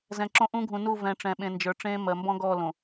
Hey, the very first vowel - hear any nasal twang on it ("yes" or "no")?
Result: yes